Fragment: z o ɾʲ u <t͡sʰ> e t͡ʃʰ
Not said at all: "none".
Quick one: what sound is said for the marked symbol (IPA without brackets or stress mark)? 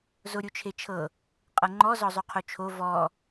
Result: t͡ʃʰ